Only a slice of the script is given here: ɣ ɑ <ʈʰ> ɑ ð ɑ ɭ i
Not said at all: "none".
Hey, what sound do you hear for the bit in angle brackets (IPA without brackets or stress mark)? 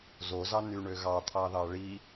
t̪ʰ